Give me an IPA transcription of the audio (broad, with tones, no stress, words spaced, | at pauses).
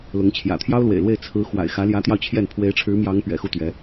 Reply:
lʊ˧˥ŋ t͡ɕʰjä̰˨˩t̪ʰjɑ˥ʊ̯lwḛ˨˩ɪ̯lwe˥˩ɪ̯ t͡sʰɹ̩˧˥ xwa̰˨˩ɪ̯xä˧˥ljä˧˥t̪jɑ˧ʊ̯ t͡ɕʰjɛ˥˩n pʰwe˧˥ɪ̯ʈ͡ʂʰɻ̩˧˥mjɑ˧˥ŋ pɥɛ̰˨˩xu˥˩t̪ɥɛ˧˥